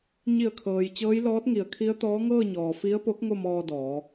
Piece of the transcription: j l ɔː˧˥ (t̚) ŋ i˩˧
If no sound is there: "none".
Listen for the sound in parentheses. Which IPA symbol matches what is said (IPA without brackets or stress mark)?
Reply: t̚